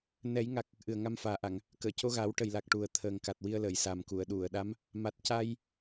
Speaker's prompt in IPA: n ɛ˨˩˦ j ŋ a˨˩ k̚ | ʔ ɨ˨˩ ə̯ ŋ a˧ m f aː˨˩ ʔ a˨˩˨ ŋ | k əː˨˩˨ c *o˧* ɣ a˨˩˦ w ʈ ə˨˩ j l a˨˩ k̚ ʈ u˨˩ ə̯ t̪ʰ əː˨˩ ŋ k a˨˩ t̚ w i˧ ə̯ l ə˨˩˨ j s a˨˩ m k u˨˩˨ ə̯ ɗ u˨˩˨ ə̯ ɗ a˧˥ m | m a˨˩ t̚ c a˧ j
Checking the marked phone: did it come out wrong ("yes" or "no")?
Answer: no